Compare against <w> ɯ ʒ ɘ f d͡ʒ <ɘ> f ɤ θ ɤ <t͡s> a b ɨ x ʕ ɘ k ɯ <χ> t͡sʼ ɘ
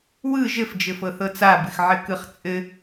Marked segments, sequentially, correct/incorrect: correct, correct, correct, correct

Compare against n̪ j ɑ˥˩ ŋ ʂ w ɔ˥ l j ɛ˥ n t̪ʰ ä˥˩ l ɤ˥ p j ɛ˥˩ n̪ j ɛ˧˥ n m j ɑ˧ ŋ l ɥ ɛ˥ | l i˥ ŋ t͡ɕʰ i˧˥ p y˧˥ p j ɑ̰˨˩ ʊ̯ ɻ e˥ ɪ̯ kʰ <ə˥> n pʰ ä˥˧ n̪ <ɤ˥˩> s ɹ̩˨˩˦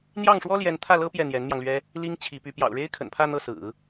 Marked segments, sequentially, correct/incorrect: incorrect, correct

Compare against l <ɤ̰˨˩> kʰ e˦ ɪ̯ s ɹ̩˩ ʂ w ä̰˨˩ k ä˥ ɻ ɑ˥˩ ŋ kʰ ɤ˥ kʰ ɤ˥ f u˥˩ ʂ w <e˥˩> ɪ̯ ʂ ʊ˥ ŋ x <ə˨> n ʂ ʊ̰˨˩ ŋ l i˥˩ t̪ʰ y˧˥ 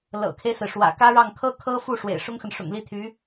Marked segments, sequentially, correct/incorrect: correct, incorrect, correct

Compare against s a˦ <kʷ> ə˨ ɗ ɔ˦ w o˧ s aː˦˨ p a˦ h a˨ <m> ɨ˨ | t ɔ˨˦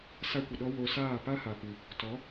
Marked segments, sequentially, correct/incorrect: correct, incorrect

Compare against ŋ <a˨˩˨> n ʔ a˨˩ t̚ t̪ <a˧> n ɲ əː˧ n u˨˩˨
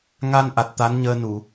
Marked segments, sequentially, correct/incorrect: incorrect, incorrect

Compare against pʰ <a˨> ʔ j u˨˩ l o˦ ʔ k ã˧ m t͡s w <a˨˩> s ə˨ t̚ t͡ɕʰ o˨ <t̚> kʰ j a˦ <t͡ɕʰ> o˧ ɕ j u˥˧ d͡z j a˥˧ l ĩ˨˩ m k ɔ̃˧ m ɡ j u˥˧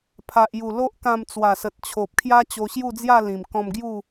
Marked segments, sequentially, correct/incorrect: correct, correct, incorrect, incorrect

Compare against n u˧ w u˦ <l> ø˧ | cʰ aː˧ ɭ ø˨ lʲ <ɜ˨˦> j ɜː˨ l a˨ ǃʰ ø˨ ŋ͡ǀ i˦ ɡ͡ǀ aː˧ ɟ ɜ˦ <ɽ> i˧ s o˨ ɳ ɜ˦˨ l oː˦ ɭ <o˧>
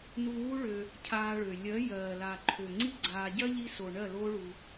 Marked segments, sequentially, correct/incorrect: incorrect, correct, incorrect, incorrect

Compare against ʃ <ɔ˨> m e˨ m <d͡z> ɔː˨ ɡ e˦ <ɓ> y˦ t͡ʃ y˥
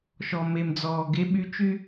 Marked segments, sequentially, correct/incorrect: correct, correct, correct

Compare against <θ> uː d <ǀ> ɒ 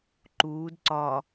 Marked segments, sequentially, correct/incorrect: incorrect, correct

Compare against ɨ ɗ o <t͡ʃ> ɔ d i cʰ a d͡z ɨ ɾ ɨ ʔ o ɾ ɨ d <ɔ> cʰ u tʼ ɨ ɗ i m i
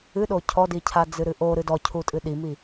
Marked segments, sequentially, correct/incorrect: incorrect, correct

